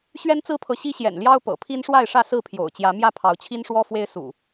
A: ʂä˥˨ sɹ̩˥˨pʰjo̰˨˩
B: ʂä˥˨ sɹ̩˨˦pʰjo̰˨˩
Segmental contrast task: A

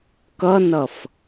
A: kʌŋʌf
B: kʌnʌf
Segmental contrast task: B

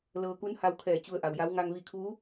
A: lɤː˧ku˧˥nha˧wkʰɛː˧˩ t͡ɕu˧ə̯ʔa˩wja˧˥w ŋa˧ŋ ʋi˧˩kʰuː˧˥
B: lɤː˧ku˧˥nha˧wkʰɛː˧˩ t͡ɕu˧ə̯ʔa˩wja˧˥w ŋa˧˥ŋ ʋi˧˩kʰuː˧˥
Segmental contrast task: A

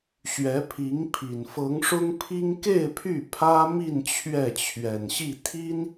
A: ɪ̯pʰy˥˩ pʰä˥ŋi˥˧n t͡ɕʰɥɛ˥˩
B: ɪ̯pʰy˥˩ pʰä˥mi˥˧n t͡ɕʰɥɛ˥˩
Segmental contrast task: B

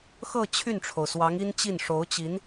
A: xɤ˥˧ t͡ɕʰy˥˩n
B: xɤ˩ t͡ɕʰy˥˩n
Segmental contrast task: A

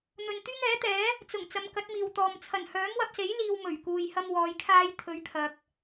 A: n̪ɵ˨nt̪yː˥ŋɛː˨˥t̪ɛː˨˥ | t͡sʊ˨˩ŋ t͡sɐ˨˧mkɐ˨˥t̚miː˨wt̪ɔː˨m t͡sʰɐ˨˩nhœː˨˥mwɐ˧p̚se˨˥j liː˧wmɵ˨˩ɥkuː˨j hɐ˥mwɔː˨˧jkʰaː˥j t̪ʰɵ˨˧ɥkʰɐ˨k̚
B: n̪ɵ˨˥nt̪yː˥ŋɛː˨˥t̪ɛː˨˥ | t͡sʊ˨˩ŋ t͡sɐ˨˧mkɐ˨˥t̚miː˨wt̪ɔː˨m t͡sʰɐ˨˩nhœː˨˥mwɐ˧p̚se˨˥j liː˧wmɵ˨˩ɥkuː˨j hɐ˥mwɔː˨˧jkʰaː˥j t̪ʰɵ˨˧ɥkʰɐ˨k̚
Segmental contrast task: A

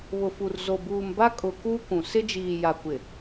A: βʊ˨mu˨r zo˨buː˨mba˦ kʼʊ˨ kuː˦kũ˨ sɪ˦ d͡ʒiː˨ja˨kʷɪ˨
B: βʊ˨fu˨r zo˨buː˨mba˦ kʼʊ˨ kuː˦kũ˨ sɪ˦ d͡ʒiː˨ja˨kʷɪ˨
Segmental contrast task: B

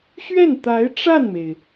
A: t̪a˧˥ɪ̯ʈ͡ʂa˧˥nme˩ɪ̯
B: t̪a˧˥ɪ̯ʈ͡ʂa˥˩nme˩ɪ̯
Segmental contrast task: B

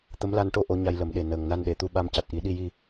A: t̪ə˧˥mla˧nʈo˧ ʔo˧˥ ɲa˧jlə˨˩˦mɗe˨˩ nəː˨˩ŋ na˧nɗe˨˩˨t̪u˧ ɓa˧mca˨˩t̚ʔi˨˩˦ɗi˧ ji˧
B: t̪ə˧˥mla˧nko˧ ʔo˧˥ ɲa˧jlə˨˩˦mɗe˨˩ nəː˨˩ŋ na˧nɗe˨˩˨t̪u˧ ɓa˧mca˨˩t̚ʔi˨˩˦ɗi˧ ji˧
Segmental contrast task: A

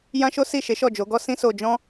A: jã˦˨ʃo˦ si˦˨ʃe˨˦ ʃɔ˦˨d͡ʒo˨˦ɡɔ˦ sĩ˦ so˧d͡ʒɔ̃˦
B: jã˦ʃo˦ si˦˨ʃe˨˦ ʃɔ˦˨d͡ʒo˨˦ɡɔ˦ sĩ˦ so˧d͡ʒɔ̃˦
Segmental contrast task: B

